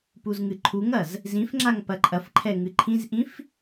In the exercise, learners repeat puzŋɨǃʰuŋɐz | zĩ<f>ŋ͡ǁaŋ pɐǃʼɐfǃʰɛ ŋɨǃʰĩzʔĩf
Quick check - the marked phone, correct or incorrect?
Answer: correct